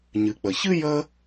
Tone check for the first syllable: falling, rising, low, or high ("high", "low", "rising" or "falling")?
low